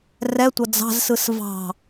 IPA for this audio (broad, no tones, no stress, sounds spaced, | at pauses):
r ɛ tʷ ɐ d͡z ɑ̤ z s ɯ s v ɑ̤